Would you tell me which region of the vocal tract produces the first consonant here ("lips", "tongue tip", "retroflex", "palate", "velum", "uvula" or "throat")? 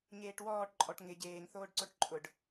palate